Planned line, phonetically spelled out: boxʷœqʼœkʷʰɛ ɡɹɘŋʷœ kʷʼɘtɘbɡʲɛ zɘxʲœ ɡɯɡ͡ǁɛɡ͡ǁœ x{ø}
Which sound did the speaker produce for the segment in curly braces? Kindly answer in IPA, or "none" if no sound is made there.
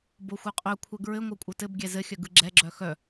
œ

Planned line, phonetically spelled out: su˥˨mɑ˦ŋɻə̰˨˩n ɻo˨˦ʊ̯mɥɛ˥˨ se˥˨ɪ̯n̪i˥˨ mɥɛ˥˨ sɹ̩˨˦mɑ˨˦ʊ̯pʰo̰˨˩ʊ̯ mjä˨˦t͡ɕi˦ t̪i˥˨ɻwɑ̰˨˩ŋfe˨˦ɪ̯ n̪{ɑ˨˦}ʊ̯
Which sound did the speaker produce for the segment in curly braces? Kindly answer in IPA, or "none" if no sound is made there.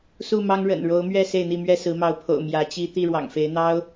ɑ˦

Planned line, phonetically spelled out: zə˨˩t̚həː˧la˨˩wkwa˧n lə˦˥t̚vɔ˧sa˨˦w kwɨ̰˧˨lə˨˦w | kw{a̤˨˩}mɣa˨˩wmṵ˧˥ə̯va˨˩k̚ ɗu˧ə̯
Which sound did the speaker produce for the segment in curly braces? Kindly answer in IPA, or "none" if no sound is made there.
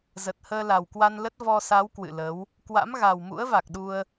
a̰˧˥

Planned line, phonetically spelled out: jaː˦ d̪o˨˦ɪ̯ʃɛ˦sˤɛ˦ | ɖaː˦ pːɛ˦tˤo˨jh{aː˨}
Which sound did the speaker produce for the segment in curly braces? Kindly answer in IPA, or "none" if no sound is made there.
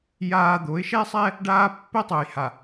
a˨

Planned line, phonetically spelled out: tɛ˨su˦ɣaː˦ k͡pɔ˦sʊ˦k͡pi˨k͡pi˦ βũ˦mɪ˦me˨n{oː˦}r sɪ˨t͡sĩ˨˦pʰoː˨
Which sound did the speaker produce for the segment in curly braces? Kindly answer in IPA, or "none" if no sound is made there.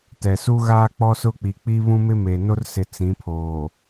o˦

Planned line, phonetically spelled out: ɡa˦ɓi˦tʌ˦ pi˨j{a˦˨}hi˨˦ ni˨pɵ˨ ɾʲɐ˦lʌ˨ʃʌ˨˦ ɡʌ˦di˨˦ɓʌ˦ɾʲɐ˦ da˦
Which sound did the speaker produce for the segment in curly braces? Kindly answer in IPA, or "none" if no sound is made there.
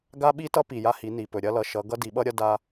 a˦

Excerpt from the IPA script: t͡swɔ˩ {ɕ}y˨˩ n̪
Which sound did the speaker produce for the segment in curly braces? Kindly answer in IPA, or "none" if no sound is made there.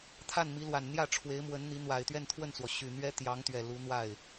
ɕ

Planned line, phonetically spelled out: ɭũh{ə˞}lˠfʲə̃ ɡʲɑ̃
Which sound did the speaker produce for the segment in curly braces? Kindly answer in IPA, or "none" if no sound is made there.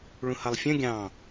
ʌ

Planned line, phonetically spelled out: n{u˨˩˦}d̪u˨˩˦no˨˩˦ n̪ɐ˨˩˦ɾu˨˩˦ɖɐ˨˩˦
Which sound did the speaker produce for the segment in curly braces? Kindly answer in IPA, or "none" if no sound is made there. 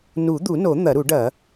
u˨˩˦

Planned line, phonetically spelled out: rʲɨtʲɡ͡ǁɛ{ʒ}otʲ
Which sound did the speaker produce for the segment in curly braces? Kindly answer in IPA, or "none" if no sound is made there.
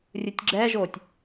ʒ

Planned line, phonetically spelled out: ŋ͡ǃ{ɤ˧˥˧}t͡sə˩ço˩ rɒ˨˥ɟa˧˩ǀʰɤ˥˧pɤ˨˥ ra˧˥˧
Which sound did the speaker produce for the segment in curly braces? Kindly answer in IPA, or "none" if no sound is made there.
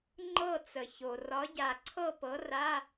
ɤ˥˧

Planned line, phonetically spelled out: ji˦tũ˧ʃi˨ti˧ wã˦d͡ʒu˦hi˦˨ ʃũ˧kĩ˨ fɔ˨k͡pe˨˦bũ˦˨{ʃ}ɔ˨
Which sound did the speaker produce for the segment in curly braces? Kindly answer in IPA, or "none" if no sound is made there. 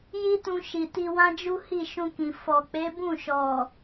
ʃ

